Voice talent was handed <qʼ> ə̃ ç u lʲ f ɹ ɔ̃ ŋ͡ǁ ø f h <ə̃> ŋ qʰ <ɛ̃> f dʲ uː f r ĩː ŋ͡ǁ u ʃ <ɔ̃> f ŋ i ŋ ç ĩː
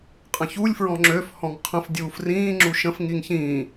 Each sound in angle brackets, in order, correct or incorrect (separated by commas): correct, incorrect, incorrect, incorrect